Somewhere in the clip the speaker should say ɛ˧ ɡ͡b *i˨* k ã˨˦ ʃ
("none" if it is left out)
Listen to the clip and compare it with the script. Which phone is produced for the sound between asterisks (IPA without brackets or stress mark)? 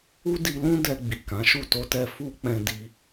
i˨